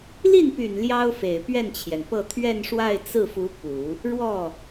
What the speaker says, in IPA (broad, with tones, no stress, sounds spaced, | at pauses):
l i˥˩ n p y˨˩ n l j ɑ˥ ʊ̯ f e˨˩ ɪ̯ p ɥ ɛ˥˩ n t͡ɕʰ j ɛ˩ n p ɤ˥˧ t̪ʰ ɥ ɛ˥˧ n ʂ w a˥˧ ɪ̯ t͡s ɹ̩˥˩ f u˧˥ p u˨˩˦ | ɻ w ɔ˥˩